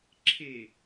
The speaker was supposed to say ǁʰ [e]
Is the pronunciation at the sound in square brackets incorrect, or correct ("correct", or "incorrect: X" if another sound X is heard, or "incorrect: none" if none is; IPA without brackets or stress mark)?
correct